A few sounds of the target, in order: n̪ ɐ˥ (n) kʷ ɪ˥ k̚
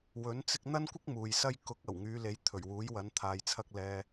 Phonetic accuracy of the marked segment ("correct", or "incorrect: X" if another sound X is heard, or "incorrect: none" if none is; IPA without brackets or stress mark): correct